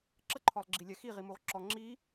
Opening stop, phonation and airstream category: click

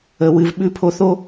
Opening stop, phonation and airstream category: implosive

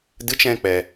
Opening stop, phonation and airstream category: plain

